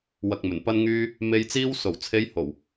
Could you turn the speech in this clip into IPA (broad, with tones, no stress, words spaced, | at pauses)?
wɐ˨k̚mɵ˨˩n pɐ˧nŋyː˧ | me˨jt͡siː˧wso˨˩wt͡sʰe˨˧j ho˨˩w